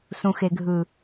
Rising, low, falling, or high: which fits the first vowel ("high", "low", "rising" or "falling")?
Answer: low